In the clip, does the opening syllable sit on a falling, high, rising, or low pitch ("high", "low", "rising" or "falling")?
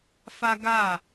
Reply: high